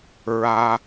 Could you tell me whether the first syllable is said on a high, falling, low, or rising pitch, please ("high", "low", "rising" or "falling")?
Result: high